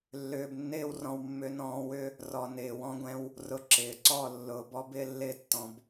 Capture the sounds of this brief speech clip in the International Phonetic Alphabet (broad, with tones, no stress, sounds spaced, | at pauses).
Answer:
lː ʏː˧ b nː ɪː˦ w r ɔ̃˧ w mː ʏ˧ n ɔ̃ː˧ w ʏ˦ | r ɔ˨ n ɪː˨ w ɔ̃˧ ɡʷ ɛ̃˧ w | r ʊ˧ ǁ ɪː˨ ǀ ɔ˦˨ lː ʊː˨ b ɔ˦ b ɪː˧ lː ɪː˧ tː ɔ̃˨ b